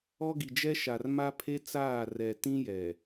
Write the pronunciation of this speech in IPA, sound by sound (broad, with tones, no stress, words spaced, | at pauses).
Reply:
ɔ˦ɡi˨d͡ʒɛ˦ʃa˨r ma˦pʰe˦t͡saː˦˨ rɛ˨ tĩ˦jɛ˨